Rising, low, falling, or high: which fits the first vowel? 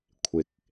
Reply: low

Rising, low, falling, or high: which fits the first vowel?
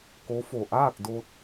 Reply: rising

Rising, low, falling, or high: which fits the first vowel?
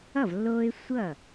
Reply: falling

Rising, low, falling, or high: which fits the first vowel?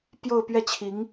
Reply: falling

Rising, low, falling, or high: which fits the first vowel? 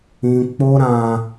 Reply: high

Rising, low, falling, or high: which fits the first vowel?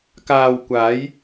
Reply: low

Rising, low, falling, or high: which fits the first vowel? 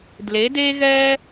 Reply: rising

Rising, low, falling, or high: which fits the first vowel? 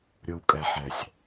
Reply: low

